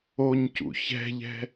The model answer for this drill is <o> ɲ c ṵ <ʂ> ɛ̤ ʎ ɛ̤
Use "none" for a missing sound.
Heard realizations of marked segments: o, ç

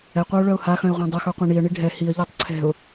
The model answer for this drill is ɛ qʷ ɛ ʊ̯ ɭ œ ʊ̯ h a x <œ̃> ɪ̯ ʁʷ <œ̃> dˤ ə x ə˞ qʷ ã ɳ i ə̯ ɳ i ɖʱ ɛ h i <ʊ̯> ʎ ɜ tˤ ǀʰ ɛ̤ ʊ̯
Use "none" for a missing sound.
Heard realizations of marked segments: œ̃, ɛ̃, ə̯

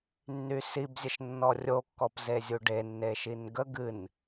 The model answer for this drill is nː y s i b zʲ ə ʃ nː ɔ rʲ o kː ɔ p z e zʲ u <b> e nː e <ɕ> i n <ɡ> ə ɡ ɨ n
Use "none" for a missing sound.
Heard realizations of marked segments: ɖ, ʃ, ɡ

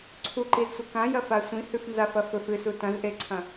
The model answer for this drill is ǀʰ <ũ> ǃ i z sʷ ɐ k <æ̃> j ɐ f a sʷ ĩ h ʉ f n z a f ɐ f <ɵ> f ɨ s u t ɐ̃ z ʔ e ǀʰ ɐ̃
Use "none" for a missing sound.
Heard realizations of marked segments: u, ã, ɵ

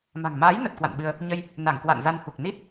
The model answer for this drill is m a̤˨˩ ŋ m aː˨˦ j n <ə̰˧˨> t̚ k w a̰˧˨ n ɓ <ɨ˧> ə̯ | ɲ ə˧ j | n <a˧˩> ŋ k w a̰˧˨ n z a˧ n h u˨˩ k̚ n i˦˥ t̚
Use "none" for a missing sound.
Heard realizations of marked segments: ə˨˩, ɨ˧, a˧˩

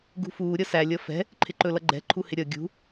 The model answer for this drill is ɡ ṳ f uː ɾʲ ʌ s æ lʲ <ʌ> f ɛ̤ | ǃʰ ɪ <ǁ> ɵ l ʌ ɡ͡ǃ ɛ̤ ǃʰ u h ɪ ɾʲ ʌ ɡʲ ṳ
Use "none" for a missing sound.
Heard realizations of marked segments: ʌ, ǃ

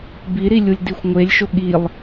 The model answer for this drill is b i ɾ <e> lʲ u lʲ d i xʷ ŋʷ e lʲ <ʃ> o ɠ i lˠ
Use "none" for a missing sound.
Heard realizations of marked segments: i, ʃ

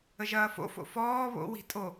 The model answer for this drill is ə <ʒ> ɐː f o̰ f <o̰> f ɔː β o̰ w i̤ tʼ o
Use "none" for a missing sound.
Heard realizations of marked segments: ʒ, o̰

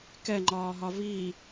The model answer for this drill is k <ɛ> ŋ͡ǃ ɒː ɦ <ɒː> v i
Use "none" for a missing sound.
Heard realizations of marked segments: ɛ, ɒ

